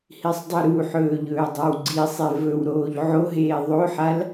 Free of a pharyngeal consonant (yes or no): no